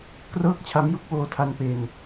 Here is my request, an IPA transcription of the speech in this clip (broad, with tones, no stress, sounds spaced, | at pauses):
k r ɤː˥˩ k̚ t͡ɕʰ a˦˥ m j u˦˥ k̚ w oː˧ tʰ a˧ n p e˧ n